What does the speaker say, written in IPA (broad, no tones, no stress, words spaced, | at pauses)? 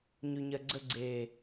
ɲʉɲɜɡ͡ǀəɡ͡ǀeː